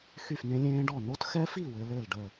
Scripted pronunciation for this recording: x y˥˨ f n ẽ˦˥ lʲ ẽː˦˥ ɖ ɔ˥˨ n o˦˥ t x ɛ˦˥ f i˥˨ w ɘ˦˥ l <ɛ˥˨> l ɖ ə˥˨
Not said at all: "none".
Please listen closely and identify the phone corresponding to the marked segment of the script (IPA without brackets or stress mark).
ɘ˥˨